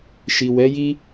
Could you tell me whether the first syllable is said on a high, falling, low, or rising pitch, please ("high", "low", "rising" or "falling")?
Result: low